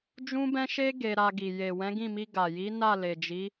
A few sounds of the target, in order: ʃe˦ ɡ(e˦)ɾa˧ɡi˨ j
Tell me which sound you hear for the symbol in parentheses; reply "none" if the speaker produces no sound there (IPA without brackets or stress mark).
e˧